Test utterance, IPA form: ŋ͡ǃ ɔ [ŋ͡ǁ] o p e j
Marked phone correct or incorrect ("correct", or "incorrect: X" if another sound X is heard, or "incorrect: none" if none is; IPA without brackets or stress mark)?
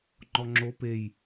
correct